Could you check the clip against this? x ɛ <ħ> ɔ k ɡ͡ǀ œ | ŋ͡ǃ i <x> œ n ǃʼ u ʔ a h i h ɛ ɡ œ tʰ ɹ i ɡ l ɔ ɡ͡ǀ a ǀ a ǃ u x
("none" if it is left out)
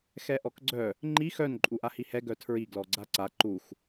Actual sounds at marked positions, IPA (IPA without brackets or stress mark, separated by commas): ʔ, x